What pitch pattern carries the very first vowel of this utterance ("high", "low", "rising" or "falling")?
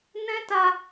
high